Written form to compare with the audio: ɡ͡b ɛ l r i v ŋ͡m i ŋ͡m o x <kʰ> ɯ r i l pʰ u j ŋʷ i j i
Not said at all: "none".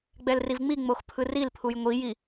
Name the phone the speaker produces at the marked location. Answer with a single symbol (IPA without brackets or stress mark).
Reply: pʰ